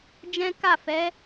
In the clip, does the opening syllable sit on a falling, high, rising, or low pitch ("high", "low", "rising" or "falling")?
high